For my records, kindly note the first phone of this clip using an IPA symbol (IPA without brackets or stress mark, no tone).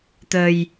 t̪